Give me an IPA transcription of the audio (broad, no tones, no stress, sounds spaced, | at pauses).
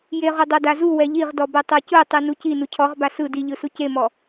j e ʁ u dˤ o d a z u w ɛ ʎ i ʁ d ɔ b ɛ tˤ o c ɯ tˤ i n u c i n u cʰ ɔ ʁ b a s ɯ d i ʎ ɯ s u c e m ɔ